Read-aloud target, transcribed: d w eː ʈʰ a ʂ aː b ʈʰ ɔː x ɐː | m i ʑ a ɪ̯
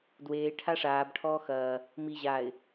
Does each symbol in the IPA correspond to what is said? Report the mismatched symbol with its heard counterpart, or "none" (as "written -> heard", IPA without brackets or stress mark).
none